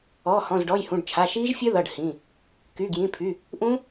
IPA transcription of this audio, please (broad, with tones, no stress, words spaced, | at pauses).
ɔː˩˧˩hɔ̃˩˧˩zɖɔ˩˧˩jhũ˩˧˩ɖ t͡ʃʰa˩˧˩ ʃiː˦˥ʒfʲɘ˦˥ðʌ˩˧˩ɖ hĩ˩˧˩ | ky˩˧˩ɡjĩ˩˧˩pʰy˩˧˩ | ʔũ˦˥